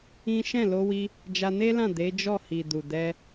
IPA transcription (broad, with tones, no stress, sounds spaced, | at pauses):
ĩ˦ ʃ ɛ̃˦˨ l o˧ w i˧ | d͡ʒ a˧ n e˦ l ã˦˨ d e˨˦ d͡ʒ ɔ˦˨ h i˨ d u˨ d ɛ˧